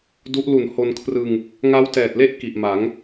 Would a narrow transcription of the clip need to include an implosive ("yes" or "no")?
no